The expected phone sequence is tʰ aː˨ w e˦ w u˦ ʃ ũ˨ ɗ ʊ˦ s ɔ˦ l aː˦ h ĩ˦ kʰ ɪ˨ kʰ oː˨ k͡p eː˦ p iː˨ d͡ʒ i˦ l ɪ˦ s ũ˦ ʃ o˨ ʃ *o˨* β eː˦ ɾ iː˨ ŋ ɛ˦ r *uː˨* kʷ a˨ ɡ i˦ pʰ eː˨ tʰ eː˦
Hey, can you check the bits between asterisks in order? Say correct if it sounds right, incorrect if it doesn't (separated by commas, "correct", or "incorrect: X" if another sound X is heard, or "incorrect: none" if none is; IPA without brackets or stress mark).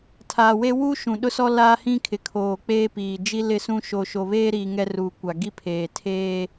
correct, correct